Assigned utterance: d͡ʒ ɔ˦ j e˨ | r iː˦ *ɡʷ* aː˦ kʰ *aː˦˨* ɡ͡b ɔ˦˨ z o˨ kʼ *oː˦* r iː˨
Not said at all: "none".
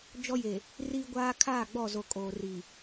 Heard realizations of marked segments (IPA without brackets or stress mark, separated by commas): ɡʷ, aː˦˨, oː˨